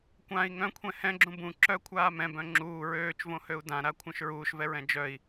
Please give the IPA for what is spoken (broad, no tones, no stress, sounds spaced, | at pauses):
kʷ ã i̯ ŋ œ̃ kʷʰ ɛ̃ h ɛ̃ ɡ͡ǁ ũ b ũ ǁ œ kʷʰ aː m ɛ̃ b œ̃ ŋ͡ǁ uː ɹ øː t͡ʃ v õ h ø u̯ d ã ɾ a kʷʰ œ̃ ʃ ɹ uː ʃ v ɛ ɹ ɛ̃ d͡ʒ œ i̯